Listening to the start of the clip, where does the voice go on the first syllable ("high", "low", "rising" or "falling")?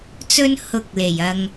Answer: high